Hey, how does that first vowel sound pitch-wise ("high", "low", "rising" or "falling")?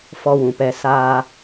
high